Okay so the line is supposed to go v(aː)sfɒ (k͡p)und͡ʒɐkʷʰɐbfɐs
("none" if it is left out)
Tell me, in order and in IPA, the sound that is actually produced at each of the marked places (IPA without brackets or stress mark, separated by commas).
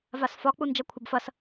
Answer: a, k͡p